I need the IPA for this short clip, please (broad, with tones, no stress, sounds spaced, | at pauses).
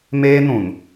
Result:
m eː˦ n ũ˨ n